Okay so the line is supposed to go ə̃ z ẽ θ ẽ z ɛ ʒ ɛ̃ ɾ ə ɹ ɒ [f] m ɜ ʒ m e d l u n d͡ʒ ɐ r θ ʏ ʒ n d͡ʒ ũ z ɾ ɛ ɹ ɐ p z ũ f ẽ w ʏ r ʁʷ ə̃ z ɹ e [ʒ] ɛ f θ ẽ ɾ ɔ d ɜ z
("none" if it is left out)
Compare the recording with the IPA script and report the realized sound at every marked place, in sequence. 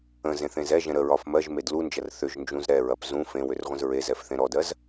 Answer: f, z

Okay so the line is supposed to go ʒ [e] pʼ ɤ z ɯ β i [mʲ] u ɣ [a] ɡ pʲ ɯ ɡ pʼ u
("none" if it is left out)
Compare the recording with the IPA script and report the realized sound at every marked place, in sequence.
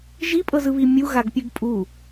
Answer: i, mʲ, a

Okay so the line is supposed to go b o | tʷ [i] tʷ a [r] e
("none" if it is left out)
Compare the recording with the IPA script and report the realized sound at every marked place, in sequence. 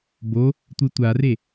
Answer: ɨ, r

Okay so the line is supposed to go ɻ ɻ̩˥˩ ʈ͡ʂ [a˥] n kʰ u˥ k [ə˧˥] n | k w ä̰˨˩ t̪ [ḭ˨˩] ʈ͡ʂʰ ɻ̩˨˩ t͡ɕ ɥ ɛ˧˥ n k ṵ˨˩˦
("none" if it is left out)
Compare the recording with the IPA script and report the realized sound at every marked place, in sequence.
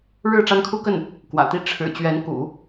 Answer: a˥, ə˥˩, i˥˩

